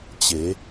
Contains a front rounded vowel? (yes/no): no